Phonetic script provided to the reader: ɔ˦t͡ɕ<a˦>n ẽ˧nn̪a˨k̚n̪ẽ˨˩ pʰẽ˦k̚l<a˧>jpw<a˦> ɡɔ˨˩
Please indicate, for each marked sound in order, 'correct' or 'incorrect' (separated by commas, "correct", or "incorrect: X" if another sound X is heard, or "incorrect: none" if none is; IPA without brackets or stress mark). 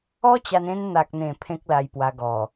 incorrect: a˧, correct, incorrect: a˧